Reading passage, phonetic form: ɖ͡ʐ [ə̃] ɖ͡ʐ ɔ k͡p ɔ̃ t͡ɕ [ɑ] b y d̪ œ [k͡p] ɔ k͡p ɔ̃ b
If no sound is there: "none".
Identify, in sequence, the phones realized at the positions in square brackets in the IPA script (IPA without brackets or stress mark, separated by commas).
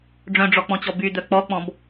œ̃, ɔ, k͡p